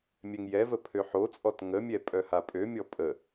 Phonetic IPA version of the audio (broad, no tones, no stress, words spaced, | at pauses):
mʲɛŋjɛvə pʰøħot͡sʼɔt ŋəmʲɛ pʼœhapʼømʲɔ pʼə